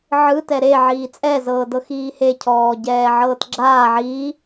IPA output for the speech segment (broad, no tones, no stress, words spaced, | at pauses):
ʕɯ tɛɾe ʕiːt͡sʼɛ zɤːdɤxiːhe cʰɔːɟɛːʕɤːtɡ͡ǁaː ʕiː